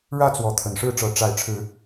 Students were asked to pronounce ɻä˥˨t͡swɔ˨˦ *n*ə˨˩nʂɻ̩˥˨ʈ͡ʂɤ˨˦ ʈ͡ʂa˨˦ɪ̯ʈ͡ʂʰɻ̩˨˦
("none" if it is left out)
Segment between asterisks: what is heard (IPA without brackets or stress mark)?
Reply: t̪ʰ